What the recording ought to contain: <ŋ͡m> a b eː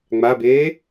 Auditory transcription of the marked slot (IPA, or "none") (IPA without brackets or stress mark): ŋ͡m